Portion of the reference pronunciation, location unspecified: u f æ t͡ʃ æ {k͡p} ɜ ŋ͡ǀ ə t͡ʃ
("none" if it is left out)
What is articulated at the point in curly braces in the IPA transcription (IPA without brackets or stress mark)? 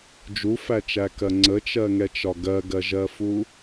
k